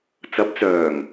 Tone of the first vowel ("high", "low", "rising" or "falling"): rising